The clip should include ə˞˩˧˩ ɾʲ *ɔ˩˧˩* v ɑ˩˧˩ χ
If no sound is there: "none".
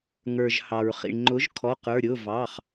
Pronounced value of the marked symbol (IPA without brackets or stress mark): ʊ˩˧˩